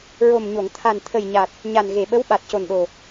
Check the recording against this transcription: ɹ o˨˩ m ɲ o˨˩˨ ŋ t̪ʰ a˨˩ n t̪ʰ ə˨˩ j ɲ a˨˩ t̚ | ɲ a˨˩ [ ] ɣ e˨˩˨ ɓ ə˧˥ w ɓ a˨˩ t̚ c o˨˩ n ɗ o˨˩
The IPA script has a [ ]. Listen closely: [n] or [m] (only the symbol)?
n